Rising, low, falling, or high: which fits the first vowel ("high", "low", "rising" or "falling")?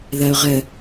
low